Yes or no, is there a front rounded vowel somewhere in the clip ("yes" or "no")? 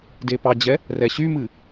yes